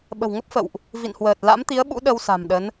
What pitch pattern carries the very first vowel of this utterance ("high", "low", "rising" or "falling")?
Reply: low